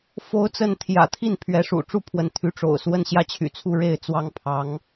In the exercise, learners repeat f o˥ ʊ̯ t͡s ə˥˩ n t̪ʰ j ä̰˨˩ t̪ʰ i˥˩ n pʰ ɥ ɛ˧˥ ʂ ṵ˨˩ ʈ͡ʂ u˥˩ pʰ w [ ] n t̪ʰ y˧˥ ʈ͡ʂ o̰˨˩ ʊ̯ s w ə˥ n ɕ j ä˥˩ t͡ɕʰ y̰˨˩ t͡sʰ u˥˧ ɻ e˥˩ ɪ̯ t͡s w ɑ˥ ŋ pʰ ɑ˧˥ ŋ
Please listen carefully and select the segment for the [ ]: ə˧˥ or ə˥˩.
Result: ə˧˥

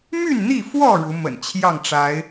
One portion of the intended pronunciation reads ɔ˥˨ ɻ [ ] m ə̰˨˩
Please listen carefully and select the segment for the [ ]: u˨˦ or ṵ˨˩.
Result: u˨˦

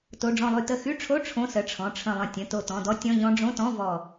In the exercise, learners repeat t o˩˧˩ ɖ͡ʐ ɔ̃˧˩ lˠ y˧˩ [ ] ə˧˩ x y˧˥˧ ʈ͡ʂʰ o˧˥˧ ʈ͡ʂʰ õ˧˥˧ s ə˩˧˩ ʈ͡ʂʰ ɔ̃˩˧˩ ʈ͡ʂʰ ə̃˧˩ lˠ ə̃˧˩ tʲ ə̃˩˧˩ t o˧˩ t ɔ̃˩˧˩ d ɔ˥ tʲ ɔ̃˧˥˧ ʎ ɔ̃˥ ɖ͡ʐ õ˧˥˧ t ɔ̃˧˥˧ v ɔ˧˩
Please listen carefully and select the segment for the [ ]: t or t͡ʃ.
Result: t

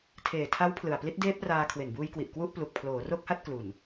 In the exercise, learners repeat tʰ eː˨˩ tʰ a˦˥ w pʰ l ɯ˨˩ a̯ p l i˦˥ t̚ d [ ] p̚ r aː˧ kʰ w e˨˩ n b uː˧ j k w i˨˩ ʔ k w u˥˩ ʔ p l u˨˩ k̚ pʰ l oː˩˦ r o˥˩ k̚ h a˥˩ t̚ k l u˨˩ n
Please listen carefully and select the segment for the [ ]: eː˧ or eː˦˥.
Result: eː˦˥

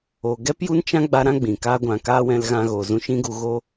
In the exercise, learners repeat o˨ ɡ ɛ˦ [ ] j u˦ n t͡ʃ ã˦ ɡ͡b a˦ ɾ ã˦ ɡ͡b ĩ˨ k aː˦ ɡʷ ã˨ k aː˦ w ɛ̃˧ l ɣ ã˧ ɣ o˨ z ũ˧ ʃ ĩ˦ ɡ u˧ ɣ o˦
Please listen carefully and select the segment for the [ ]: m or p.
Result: p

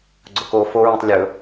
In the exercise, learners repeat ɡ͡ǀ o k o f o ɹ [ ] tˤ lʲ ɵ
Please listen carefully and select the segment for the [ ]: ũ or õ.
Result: ũ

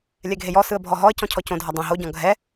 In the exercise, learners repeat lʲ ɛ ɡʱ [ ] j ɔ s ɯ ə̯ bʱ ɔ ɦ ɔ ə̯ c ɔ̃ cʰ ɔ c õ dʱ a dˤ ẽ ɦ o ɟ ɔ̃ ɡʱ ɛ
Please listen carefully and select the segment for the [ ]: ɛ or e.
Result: e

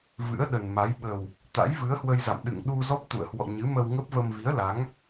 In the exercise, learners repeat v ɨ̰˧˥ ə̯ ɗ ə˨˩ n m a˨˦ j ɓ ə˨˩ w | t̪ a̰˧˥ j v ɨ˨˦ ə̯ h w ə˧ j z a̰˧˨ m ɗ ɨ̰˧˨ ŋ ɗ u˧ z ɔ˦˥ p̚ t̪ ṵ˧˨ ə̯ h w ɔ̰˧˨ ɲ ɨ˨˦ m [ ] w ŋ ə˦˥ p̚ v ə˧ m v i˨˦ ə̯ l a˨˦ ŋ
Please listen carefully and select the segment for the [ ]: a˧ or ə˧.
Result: ə˧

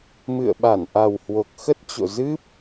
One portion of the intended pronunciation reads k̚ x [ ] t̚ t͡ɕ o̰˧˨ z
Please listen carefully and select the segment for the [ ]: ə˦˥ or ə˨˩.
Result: ə˦˥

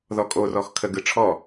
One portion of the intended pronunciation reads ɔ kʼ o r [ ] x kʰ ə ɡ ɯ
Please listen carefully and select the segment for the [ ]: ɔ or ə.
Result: ɔ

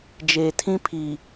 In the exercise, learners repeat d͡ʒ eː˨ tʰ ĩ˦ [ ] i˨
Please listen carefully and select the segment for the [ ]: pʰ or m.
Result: pʰ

